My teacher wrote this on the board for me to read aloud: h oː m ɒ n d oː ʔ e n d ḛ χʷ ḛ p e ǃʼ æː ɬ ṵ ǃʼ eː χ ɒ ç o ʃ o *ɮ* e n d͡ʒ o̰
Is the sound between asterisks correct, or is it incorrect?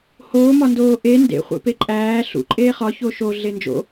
correct